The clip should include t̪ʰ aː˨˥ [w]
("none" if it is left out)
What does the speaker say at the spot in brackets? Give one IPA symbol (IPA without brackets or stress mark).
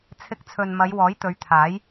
j